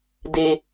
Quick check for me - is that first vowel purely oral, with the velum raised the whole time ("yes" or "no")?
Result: yes